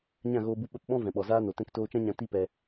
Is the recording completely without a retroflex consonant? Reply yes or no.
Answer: yes